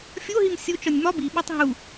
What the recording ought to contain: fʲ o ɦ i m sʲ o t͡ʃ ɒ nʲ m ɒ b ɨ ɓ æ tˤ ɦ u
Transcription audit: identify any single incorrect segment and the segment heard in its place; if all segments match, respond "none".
ɨ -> i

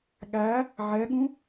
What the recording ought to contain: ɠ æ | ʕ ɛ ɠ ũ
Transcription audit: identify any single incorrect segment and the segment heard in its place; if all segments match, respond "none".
none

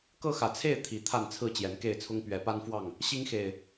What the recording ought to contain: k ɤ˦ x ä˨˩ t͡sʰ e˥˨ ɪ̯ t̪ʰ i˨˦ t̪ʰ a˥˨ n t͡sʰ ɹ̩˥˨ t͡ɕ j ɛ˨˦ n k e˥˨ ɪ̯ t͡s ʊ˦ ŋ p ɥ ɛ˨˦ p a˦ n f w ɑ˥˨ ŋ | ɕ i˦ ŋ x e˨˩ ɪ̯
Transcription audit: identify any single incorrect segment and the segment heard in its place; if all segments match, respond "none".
t͡s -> t͡sʰ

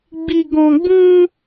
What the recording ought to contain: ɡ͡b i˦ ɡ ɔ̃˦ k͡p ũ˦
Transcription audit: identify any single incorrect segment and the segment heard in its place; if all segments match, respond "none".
k͡p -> ɡ͡b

